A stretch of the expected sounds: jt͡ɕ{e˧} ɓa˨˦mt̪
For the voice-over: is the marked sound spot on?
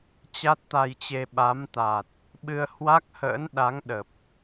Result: yes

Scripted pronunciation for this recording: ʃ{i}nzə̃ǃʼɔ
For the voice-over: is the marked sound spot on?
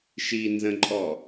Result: yes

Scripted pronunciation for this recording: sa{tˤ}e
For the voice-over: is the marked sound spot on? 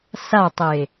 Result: yes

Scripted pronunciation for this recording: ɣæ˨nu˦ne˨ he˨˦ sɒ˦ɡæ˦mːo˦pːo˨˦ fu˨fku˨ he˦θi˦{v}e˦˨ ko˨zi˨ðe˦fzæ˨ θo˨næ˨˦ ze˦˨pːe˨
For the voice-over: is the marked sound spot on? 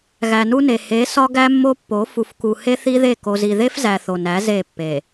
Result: no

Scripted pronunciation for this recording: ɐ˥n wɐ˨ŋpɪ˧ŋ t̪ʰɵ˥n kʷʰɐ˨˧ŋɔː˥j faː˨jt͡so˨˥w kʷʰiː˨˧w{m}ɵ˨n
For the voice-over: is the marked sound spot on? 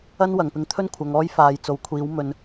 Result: yes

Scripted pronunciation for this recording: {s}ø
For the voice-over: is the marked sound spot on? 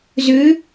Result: no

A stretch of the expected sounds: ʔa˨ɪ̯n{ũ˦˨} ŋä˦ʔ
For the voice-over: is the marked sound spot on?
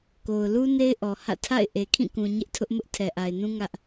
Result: no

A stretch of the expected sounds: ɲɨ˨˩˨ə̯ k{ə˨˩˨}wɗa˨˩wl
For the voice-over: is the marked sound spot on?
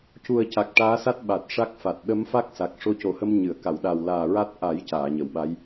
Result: no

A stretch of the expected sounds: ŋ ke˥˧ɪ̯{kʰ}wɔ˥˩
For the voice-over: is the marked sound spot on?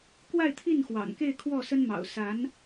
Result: yes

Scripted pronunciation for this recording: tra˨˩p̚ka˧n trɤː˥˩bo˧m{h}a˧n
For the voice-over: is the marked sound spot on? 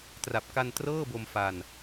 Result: no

